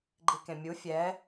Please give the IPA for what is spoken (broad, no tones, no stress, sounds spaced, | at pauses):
ɡ͡ǃ i k ẽ mʲ u fʲ ɛ